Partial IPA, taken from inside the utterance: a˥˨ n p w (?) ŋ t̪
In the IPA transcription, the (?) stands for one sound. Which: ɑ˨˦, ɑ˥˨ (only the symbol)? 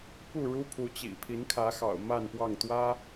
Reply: ɑ˥˨